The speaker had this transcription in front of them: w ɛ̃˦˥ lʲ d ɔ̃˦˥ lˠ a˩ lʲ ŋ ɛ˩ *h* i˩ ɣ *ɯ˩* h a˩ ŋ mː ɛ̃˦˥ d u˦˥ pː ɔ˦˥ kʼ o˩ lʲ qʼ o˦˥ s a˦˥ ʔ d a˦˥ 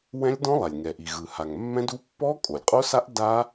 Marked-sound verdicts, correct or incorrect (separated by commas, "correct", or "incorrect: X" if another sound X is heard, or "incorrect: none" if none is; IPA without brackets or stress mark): incorrect: ʔ, correct